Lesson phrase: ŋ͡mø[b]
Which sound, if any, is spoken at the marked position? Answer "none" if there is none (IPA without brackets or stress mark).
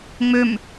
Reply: m